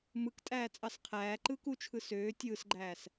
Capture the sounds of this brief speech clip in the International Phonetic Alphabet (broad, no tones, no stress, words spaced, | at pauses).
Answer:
mɯk tʼæːt͡sʼɑsqʰæːǃɯːk ut͡ʃʰɯ søː tʲɯːsɡ͡ǃæːs